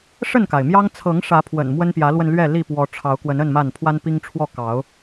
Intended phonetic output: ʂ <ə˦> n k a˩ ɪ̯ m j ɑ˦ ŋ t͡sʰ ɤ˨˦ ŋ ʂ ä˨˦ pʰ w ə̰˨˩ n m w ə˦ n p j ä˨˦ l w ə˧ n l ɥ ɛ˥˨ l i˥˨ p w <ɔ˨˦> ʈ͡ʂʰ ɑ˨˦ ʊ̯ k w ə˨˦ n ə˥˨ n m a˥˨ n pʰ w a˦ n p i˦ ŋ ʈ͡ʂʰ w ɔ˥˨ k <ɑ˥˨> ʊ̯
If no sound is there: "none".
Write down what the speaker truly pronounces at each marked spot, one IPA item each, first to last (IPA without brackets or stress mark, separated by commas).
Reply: ə˥˨, ɔ˨˦, ɑ˨˦